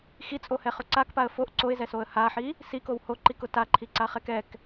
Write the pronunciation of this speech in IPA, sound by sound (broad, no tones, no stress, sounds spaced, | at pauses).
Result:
x i t͡sʼ o h ɛ χ ʊ ǀ a k p a ə̯ f o ʔ ǀ o ɪ̯ z ɛ s o ə̯ h a ħ i | s i k o w h o ǃ i k ʊ t a ǃʰ i ǀ a χ ɛ k ɛ k